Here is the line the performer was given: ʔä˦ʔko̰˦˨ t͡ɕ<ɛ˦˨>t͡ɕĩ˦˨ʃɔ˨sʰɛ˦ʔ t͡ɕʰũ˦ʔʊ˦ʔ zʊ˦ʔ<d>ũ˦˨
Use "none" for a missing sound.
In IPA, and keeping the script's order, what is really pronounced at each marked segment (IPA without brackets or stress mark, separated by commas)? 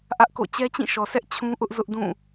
ɛ˦, d